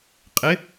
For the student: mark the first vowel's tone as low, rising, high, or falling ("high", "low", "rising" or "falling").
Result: rising